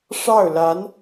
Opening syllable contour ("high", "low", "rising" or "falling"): falling